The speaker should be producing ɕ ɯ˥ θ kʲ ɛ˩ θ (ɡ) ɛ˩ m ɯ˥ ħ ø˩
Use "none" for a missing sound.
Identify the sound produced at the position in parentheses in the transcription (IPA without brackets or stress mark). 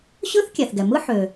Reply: ɡ